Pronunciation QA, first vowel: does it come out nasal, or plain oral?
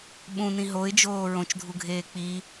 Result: nasal